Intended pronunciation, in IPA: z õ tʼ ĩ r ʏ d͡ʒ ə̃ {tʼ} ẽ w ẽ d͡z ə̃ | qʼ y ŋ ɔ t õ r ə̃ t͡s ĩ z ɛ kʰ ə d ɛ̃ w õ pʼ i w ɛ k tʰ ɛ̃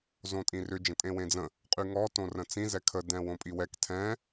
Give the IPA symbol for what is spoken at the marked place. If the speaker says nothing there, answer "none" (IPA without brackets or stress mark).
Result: tʼ